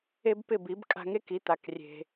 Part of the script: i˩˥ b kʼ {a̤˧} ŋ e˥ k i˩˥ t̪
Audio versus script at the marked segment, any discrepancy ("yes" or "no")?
no